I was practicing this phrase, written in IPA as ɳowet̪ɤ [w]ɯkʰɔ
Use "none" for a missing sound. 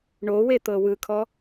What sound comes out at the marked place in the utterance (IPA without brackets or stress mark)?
w